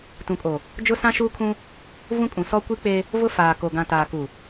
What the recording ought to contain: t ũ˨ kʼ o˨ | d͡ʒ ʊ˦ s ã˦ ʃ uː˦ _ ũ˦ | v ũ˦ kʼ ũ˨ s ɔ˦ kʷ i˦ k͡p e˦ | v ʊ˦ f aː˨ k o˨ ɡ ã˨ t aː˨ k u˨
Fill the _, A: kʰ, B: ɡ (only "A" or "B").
A